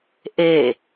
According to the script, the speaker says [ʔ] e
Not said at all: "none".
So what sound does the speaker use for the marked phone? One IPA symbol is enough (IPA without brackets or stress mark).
ʔ